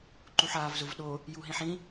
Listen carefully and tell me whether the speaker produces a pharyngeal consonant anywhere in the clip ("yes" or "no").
yes